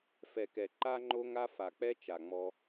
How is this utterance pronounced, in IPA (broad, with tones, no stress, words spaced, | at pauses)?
fɛ˨kɛ˨ ǃa˦ŋ͡ǃo˦ŋa˦ fa˨k͡pɛ˦t͡ʃa˨ ŋ͡mɔ˧